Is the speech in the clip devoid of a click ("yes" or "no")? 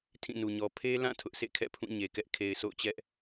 yes